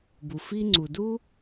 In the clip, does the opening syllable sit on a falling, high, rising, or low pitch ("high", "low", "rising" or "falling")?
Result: low